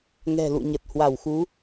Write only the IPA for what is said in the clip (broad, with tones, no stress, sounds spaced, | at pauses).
ŋ ɛ̤˨˩ l ṵ˧˨ ɲ ə˨˩ t̚ h w a˧˩ w x u˨˦